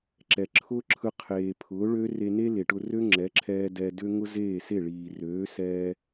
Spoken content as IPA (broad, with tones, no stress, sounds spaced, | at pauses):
ǁ ɛ˨ ǁʰ ʊː˦ ǁʰ ɯ˧ qʰ eː˨ pʰ ʊː˨˦ ɭ ø˦ r e˧ n e˦ l e˨ ʈ ʊ˧ r ø˦ ŋ͡ǁ ɛ˨˦ ǁʰ ɛː˧ d ɛ˧ d ø˦ ŋ ʊ˦ z eː˦˨ s e˦˨ ɭ iː˨ r øː˨˦ s ɛː˧